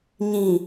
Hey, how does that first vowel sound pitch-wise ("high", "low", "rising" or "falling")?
low